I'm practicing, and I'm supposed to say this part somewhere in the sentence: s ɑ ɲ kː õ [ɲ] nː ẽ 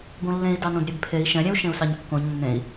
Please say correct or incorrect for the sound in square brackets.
correct